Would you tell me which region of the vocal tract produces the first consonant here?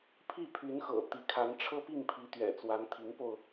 lips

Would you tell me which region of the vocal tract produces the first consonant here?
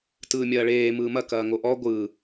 tongue tip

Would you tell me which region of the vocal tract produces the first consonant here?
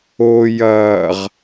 palate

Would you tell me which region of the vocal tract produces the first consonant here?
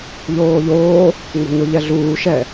palate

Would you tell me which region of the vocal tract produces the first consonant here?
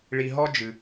retroflex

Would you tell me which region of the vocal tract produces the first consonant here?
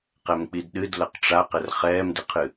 uvula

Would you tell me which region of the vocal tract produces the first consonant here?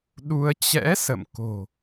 tongue tip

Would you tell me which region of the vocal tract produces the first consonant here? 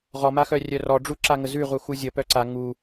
uvula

